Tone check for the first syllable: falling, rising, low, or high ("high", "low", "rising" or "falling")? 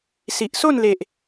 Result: low